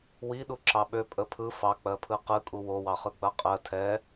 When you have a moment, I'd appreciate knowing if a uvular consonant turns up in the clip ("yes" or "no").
yes